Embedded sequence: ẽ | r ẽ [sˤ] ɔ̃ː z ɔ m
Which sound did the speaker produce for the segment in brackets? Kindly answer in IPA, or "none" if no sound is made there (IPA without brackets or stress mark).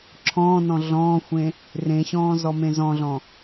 ɕ